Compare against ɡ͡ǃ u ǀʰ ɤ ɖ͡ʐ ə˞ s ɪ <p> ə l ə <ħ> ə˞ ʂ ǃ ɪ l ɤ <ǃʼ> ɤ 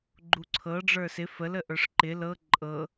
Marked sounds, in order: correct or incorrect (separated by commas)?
incorrect, incorrect, correct